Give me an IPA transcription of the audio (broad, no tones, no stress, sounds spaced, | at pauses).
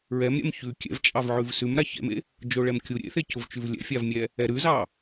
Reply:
ɹ ɛ m ɾʲ ɛ̰ m ç ʉ kʲ ɛ̰ v t͡ʃʼ ɑ v ʕ ʉ v s ʉ m ɾ a ç ɛ̰ m ḛ | d͡ʒ o ɭ ɛ m kʲ u ɾʲ ḛ θ e c ʊ v t͡ʃ ʉ v lʲ ɛ̰ fʲ a v mʲ ɛ | ɛ ɾ ʉ z ɑ